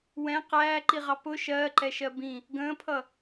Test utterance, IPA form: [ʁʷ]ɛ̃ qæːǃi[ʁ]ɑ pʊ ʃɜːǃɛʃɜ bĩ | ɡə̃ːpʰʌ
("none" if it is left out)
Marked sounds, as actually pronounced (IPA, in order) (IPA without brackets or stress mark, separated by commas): w, ʁ